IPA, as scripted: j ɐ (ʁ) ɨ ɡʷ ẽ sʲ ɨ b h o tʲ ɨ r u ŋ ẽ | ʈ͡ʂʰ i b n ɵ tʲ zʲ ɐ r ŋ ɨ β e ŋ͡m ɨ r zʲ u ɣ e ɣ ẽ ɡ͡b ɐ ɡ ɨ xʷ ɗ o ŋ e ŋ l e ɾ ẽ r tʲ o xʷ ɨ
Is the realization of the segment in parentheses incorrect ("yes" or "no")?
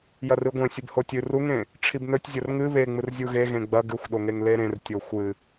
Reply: yes